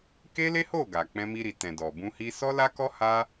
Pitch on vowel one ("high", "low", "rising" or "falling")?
high